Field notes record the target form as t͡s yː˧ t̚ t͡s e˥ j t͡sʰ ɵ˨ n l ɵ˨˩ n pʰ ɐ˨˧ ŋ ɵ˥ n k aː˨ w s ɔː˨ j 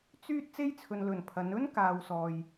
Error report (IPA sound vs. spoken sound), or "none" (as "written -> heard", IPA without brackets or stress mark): ŋ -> n